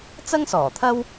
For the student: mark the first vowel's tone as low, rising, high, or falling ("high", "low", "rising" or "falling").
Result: high